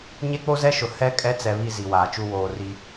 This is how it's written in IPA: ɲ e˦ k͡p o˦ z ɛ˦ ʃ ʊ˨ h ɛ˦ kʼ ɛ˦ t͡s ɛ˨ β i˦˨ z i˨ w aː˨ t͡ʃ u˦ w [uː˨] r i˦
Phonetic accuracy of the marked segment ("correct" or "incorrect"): incorrect